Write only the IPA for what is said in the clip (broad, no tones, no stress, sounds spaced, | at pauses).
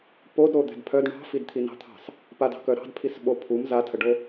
p o d ɾ o d̪ ɛ̤ d pʰ œ d ɳ ɑ̤ f i d t̪ʰ i n ɑ̤ t̪ʰ ɑ̤ s | p a d ɑ̤ k œ ɾ ɑ̤ d pʰ i s ɓ o pʰ u m z a tʰ ə ɖ o